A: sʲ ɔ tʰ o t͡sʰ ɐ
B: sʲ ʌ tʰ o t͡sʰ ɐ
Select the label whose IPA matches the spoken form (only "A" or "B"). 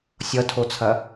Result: B